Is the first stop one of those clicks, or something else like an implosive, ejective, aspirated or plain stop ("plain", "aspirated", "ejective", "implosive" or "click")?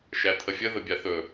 aspirated